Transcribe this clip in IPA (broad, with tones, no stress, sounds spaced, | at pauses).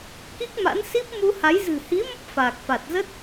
k i˦˥ k̚ m a̰˧˥ n s i˦˥ p̚ m u˧ h a˨˦ j z ɨ̤˨˩ h i˨˦ m ə˦˥ p̚ f aː˨˩ k̚ f a˨˩ t̚ z ə˦˥ t̚